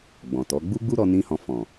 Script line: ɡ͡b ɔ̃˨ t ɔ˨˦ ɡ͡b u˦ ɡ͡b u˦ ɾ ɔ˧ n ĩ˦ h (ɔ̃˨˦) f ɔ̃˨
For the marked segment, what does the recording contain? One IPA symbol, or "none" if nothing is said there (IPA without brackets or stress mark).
ɔ̃˧